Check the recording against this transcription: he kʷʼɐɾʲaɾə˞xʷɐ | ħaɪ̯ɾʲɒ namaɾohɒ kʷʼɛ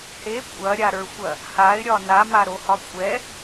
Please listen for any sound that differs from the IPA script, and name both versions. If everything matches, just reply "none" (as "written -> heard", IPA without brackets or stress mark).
ħ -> h